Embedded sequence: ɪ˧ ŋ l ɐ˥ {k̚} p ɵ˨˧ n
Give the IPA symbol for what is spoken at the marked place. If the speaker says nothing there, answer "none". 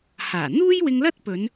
t̚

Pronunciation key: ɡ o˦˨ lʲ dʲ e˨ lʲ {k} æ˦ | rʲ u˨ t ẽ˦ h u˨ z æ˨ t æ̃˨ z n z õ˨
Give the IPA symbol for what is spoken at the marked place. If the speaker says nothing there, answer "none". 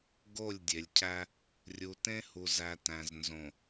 cʰ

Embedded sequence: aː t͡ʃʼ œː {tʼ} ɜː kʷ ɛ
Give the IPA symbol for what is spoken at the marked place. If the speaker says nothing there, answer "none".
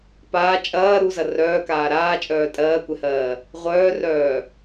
tʼ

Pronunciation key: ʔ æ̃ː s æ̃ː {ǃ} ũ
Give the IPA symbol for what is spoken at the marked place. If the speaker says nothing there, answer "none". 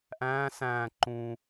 ǃ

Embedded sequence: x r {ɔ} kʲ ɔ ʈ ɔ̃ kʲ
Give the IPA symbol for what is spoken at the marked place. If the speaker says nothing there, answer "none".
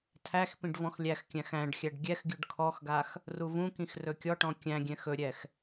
ɵ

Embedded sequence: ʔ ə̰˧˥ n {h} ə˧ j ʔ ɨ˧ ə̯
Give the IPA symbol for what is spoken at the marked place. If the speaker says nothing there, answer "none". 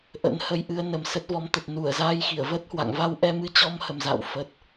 h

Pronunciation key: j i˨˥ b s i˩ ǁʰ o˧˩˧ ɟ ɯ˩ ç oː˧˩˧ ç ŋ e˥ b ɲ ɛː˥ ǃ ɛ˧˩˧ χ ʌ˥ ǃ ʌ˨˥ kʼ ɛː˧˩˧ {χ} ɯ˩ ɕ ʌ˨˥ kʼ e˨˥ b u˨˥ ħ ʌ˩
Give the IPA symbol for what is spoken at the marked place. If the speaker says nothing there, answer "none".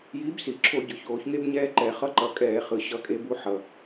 χ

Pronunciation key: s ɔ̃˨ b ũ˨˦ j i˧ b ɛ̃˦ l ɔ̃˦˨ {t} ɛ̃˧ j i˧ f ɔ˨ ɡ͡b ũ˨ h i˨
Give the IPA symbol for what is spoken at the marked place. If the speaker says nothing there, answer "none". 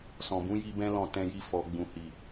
t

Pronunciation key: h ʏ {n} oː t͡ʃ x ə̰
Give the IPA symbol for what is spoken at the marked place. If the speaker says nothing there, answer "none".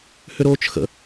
ɾ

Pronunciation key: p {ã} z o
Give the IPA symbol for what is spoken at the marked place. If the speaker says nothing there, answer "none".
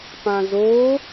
ã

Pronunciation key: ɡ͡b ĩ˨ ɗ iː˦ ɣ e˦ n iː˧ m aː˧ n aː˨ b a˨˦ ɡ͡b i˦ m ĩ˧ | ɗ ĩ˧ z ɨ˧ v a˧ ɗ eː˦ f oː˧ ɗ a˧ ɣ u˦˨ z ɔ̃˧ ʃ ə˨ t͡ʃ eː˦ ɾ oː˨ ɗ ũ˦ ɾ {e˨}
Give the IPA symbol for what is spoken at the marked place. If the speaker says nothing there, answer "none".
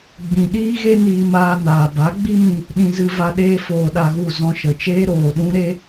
e˦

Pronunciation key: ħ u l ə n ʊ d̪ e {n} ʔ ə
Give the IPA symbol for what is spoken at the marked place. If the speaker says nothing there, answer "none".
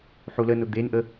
n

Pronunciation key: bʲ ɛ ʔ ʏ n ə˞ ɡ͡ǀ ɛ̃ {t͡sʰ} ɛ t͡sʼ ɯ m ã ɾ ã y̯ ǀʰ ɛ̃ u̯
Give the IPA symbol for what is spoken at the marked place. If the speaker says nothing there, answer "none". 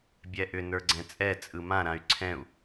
t͡sʼ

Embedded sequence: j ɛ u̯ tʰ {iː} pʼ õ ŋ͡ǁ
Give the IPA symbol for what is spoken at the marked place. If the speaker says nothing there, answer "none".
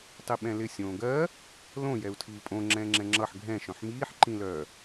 iː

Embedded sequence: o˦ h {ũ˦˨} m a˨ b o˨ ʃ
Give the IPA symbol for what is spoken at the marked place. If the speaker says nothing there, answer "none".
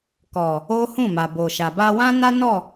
ũ˦˨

